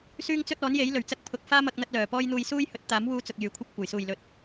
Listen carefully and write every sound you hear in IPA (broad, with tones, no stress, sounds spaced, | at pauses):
s yː˥ ŋ t͡s ɵ˥ t̚ ɔː˨˥ n j e˨˥ j l ɵ˨˩ ɥ t͡s ɐ˧ k̚ pʰ ʊ˨ k̚ f aː˥ m ɐ˧ k̚ n̪ ɐ˧ t̚ l œː˨˩ p ɔː˥ j n̪ uː˧ j s uː˥ j h ɵ˨˥ t̚ t̪ aː˨˥ m w uː˧ t͡s ʊ˨ k̚ j yː˨ kʷʰ ɐ˥ p̚ kʷ ɐ˨˩ j s uː˨˩ j l ɵ˨ t̚